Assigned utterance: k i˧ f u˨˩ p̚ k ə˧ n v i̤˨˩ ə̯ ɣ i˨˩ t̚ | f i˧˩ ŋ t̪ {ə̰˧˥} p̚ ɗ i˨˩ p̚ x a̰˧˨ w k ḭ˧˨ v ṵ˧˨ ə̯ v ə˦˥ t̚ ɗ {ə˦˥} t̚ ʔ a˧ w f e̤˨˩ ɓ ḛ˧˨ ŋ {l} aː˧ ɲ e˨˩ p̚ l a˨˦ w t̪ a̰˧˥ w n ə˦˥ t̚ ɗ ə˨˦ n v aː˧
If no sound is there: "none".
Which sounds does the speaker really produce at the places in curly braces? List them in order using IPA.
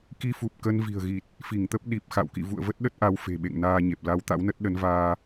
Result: ə˦˥, ə˦˥, n

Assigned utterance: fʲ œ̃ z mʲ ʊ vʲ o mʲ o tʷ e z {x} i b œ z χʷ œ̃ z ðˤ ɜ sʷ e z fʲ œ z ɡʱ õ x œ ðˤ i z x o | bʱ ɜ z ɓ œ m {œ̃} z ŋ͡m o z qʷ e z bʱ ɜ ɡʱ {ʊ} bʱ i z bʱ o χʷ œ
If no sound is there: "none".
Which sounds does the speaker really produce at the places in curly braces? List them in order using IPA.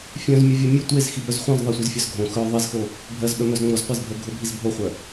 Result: x, œ, ʊ

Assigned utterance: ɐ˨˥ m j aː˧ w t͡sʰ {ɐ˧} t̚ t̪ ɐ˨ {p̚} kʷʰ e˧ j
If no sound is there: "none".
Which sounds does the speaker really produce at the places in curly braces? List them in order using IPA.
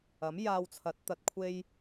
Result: ɐ˨˥, t̚

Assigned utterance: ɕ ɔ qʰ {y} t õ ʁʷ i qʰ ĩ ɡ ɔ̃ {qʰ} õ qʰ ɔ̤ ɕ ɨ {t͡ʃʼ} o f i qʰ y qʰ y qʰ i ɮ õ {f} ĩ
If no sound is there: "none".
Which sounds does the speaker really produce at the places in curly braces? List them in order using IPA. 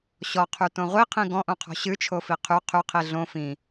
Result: y, ʔ, t͡ʃʰ, f

